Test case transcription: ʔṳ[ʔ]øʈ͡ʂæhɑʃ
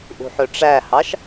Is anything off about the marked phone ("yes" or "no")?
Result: yes